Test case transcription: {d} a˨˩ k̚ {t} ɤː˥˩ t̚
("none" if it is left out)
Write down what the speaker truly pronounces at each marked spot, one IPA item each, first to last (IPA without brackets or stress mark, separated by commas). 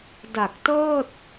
d, t